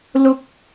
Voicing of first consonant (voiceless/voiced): voiced